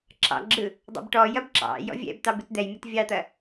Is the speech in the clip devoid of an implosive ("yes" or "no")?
yes